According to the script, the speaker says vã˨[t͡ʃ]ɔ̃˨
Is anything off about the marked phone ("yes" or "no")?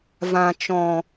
no